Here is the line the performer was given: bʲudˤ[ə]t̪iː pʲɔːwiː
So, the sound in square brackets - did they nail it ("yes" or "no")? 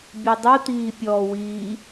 no